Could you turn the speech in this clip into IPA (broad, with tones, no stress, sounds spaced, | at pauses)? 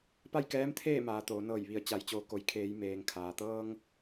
p a˥˨ j k ɛː˧˥ m t̪ʰ eː˥˨ m aː˩ t̪ oː˩˧ n ɤː˧˩ j ʋ i˧˩ ə̯ t͡ɕ a˩˧ j t͡ɕ oː˩˧ k o˩ j kʰ eː˩˧ j m eː˩ ŋ kʰ aː˩ t̪ ɤː˧ ŋ